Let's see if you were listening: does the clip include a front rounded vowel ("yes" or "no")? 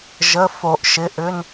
yes